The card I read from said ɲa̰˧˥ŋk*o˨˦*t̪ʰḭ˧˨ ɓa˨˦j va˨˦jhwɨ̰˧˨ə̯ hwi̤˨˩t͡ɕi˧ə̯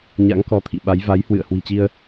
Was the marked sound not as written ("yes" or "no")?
yes